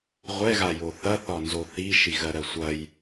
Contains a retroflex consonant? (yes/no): no